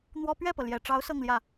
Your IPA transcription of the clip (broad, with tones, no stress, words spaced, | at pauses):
n̪wɔ˥ pɥɛ˥˩pɤ˩ljɛ˨˩ʈ͡ʂɑ˧˥ʊ̯ sɤ˥˧ŋljä˥˩